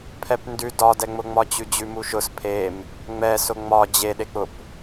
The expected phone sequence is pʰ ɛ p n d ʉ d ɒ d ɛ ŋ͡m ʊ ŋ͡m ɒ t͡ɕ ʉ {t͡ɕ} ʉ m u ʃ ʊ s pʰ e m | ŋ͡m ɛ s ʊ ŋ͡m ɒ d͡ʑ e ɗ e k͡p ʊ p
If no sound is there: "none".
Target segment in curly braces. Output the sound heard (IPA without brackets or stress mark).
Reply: d͡ʑ